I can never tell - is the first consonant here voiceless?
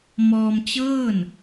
no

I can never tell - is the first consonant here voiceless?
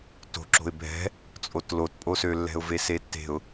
yes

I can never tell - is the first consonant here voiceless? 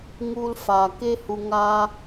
no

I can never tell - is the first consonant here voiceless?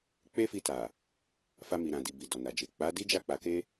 yes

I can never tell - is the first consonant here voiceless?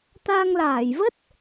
yes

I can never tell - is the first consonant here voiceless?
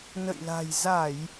no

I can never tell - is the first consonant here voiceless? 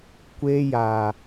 yes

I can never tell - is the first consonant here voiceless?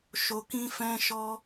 yes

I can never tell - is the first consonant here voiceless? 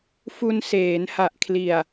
yes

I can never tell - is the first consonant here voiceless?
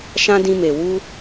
yes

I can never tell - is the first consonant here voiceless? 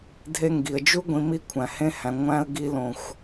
no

